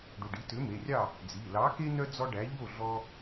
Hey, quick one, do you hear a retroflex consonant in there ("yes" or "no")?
yes